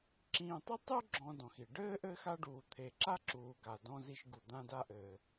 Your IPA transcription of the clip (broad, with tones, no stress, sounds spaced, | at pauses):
ǁ ĩː˧ tˤ i˥ tˤ u˥ ɡ͡ǁ ɔ̃˧ d ɔ̃˧ x i˧ ɖ ɘː˥ ʔ ɘː˥ x a˥ ɖ uː˧ t̪ʰ e˧ ǁ a˥ ǁ uː˧ ɡ a˧ d ɔ̃˥ z i˥ ʃ ɡ u˧ d̪ ã˥ d a˥ ʔ ɘː˧